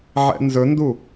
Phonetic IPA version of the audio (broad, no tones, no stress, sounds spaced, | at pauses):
ʕ ɛ̰ n z ɵ n d u